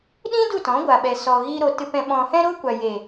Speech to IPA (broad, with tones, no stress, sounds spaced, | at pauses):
ɗ ĩ˦ d u˦˨ t ɔ̃˨˦ ɡʷ a˨ ɓ ɛ˨ s ɔ˨ ɣ iː˧ ɾ o˨ t ɨ˨ p ɛ̃˨ ɓ ɔ̃˨ h ɛ̃˧ ɾ o˧ kʷ a˨ j eː˨